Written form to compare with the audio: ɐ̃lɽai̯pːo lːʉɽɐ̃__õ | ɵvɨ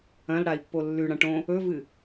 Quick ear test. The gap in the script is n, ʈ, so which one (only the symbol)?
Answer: ʈ